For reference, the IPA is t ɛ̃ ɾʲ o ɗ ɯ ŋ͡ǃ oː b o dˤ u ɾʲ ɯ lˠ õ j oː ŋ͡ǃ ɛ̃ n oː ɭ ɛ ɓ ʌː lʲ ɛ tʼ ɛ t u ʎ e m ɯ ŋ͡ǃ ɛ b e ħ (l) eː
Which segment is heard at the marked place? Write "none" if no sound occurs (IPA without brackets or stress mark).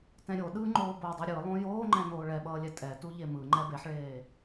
ɭ